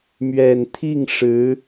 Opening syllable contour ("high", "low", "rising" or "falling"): low